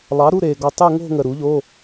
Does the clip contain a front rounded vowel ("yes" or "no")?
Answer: no